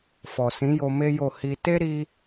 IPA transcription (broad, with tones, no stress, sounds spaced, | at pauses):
f ɔ˨ s ĩ˨˦ j o˧ m e˦ j o˦˨ h i˧ t e˦ ɾ i˦